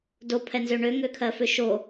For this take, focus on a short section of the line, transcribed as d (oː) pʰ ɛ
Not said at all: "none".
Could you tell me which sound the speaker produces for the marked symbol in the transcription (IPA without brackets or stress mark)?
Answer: o